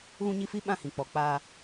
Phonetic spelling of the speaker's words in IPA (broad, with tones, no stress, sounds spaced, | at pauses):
ɣ ũ˦ ɲ i˦ f i˦ ɓ ã˦˨ h ĩ˨ k͡p ɔ˨ k͡p aː˦